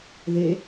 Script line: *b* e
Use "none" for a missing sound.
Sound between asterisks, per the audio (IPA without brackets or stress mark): ð